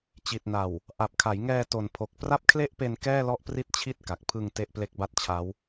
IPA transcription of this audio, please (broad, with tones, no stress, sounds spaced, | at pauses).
t͡ɕ i˨˩ t̚ n a˨˩ w | ʔ a˨˩ p̚ kʰ a˩˦ j ŋ ɛː˧ t o˨˩ n pʰ o˨˩ k̚ p r a˥˩ p̚ kʰ l e˥˩ ʔ p e˧ n k ɛː˥˩ l ɔ˦˥ ʔ p r i˦˥ t̚ t͡ɕʰ i˥˩ t̚ k a˨˩ k̚ pʰ ɯ˧ ŋ t e˥˩ ʔ p l e˦˥ k̚ b a˥˩ t̚ t͡ɕʰ a˦˥ w